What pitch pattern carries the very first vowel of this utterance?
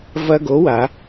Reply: high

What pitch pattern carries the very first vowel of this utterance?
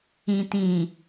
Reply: low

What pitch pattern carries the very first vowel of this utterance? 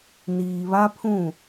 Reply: low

